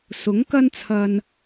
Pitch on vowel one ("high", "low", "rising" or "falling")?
rising